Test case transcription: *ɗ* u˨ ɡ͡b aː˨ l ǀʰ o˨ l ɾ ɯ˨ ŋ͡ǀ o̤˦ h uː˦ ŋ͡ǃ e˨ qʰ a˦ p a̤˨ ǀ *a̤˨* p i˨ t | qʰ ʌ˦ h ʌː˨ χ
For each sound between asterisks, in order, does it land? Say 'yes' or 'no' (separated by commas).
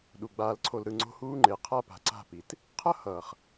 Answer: yes, no